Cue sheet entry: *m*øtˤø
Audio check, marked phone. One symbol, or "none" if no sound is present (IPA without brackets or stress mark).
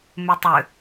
m